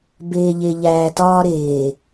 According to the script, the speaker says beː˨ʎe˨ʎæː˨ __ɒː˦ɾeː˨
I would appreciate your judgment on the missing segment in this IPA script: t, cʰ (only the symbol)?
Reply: t